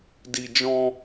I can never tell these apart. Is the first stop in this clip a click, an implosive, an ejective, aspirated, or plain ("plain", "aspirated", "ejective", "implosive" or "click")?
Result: plain